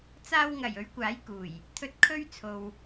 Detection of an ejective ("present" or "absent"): absent